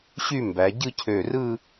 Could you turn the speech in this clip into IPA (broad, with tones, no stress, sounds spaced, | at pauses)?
ɕ y˥˧ m b æ˩˧ ɟ ɯ˥˧ cʰ ø˧˩ r ɯ˥˧